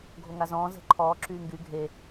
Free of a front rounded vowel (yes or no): no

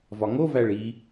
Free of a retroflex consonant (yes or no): no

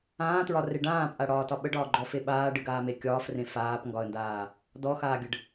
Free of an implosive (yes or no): no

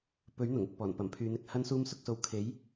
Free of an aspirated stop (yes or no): no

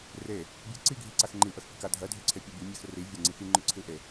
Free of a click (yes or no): no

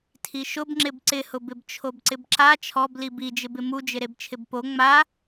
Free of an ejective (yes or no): yes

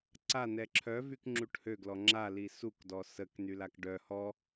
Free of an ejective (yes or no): yes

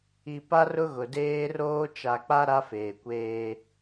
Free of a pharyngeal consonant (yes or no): yes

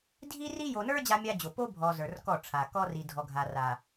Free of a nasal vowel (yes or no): yes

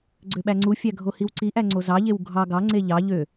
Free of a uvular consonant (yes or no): yes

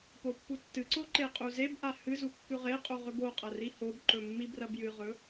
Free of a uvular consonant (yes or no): no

